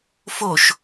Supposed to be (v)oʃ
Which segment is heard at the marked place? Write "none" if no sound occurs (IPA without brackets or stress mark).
f